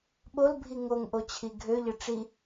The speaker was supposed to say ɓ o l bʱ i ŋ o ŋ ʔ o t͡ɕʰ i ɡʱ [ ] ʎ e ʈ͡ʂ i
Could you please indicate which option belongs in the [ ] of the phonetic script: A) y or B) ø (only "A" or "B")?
B